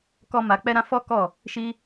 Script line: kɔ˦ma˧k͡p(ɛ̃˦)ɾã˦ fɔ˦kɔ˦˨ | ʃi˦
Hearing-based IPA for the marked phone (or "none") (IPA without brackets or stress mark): ɛ˦